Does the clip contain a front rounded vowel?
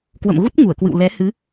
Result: no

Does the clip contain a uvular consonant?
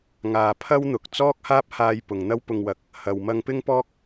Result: no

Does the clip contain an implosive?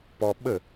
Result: yes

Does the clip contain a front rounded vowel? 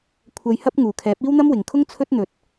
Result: no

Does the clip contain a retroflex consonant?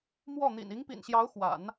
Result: no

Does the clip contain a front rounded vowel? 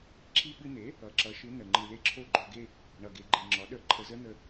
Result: no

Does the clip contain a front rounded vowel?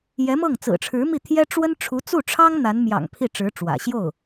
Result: no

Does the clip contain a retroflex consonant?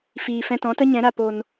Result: no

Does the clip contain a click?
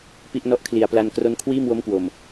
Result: no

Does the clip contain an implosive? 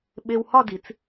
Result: yes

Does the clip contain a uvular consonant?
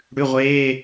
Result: yes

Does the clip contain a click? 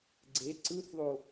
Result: yes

